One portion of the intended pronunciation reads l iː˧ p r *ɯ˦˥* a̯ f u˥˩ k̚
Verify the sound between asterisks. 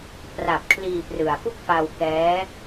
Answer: incorrect: ɯ˨˩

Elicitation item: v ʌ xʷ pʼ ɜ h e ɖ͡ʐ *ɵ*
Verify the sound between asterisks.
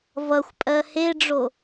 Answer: incorrect: o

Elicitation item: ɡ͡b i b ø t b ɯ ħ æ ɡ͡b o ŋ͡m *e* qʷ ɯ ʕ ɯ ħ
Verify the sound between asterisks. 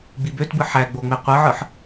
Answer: correct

